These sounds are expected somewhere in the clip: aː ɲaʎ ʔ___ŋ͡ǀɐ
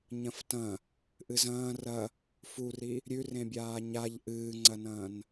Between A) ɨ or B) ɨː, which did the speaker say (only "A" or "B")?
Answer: B